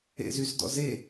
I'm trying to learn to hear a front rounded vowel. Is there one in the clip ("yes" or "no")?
yes